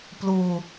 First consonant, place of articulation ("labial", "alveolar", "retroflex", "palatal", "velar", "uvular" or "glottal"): labial